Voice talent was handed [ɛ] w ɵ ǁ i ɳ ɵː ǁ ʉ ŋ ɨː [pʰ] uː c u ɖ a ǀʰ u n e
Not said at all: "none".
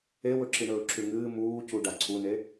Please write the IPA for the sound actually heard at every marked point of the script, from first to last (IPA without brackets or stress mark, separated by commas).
e, m